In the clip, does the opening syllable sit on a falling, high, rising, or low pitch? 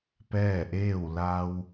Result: falling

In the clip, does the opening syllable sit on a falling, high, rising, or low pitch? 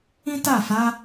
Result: high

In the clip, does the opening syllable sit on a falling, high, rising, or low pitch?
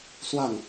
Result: falling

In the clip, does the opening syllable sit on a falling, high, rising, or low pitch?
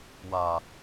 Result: low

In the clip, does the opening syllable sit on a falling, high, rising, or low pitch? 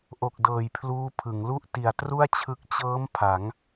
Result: low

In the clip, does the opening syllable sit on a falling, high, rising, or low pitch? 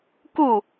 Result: falling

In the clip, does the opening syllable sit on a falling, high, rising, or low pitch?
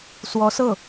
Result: rising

